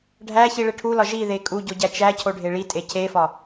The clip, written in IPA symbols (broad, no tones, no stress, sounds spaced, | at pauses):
ɖʱ æ ç i ɭ e ʈʰ u l ɒ ʒ i ð e kʼ u ɟ o ɟ æ t͡ʃ æ cʰ o ɖʱ e ɭ i tʼ e cʰ e f ɒ